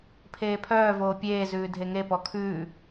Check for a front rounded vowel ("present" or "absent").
present